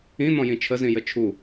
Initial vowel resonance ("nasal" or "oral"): nasal